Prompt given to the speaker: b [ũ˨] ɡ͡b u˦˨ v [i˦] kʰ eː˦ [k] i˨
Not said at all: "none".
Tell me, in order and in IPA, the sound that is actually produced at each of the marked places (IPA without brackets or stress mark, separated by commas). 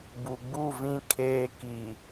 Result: u˨, ĩ˦, k